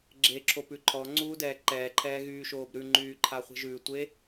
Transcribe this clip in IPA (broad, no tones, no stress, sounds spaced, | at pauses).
ɡ͡ǁ e ǁʰ o p ʉ ǃʰ ɔ ŋ͡ǀ uː d ɛː ǃ ɛː ǃʰ ɛː ɣ yː ʃ oː b ɾ ʉ ŋ͡ǃ yː ǃʰ a χʷ e̤ ʒ ʉ tʷ e